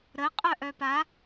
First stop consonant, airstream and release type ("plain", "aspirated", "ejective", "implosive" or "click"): ejective